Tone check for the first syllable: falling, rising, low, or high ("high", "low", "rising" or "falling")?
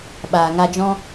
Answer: low